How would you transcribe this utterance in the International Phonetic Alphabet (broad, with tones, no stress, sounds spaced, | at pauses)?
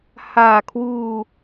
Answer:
h aː˨˩ kʰ w uː˧